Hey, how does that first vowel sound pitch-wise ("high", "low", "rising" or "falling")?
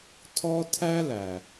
high